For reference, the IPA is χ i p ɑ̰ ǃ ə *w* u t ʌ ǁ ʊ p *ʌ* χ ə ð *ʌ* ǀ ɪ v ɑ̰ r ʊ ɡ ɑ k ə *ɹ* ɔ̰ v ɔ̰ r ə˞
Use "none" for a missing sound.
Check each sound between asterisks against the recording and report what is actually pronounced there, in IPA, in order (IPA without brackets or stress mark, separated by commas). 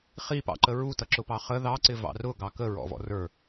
ɹ, ɑ, ɑ, ɹ